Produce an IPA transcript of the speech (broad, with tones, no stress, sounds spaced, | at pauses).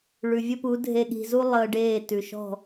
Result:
ɭ ʉ˨ vʲ ə˦ p u˨˦ dʱ e˧ ɠ i̤˧ z u˦ lˠ əː˧ ɖ eː˦˨ t ʉ˨ ʃ ɔ̤˦˨